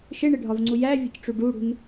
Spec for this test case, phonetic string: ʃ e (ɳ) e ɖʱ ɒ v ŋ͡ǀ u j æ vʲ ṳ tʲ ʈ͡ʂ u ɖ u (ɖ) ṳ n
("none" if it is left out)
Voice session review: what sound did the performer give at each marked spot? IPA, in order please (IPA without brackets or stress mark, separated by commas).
ɳ, ɽ